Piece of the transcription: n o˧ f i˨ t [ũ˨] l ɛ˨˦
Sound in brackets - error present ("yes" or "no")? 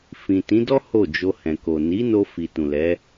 no